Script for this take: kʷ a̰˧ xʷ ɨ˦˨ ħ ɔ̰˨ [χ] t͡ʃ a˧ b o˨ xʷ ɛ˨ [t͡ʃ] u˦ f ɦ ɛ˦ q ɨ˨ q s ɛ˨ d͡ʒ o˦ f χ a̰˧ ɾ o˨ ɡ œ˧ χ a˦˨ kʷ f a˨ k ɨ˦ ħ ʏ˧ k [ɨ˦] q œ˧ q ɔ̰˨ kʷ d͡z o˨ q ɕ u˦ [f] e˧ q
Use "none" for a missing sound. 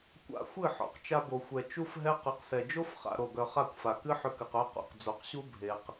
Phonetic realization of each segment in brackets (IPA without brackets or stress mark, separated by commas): q, t͡ʃ, ɨ˨, bʱ